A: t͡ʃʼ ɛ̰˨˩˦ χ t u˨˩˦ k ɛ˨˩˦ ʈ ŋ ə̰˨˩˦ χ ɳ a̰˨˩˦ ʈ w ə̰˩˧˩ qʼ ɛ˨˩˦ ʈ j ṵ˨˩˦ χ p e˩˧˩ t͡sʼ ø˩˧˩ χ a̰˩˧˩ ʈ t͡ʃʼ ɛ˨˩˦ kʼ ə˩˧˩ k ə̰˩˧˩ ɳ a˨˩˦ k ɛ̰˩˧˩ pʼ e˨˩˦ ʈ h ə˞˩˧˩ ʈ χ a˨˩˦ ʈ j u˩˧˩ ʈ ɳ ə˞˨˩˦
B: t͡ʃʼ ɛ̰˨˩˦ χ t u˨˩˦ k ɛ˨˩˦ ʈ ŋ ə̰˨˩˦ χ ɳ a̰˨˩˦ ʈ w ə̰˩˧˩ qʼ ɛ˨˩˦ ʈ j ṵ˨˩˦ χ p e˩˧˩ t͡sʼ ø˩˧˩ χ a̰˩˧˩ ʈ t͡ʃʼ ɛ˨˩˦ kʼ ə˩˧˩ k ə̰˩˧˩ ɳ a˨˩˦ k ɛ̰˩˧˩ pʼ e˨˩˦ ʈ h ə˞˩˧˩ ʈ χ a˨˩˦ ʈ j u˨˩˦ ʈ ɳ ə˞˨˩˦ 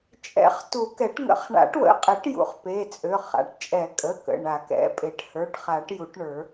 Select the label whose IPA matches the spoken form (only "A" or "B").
B